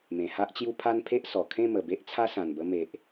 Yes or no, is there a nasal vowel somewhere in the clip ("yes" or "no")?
yes